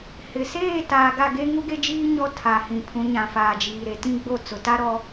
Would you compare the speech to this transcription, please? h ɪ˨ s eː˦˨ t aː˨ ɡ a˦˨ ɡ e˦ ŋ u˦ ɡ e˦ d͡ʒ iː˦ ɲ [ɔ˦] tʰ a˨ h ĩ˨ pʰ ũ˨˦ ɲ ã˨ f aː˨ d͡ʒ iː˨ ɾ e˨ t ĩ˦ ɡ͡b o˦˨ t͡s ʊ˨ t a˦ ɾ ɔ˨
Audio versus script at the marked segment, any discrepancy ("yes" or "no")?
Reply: no